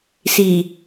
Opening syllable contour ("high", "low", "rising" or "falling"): low